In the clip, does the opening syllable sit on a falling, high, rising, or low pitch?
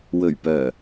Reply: low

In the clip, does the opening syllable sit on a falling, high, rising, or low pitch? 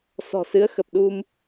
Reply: low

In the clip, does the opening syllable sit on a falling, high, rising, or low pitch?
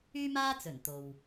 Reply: high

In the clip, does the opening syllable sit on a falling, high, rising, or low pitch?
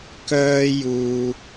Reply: high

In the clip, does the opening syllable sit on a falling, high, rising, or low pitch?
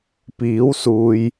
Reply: rising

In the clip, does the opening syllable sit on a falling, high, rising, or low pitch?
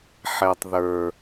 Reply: low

